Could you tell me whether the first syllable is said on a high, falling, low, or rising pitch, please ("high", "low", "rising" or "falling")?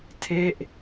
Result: falling